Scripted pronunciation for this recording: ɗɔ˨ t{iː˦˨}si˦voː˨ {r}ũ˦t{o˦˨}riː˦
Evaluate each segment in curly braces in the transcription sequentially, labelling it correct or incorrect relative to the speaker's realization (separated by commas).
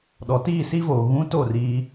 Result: correct, incorrect, correct